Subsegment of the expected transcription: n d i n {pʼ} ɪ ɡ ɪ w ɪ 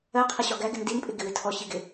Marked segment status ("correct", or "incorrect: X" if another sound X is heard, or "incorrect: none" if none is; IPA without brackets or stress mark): correct